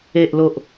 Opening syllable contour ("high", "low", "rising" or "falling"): low